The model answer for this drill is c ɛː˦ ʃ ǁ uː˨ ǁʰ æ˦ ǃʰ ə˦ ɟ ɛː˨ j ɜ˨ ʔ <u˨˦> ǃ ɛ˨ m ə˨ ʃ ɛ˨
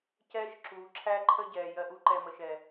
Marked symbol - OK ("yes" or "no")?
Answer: yes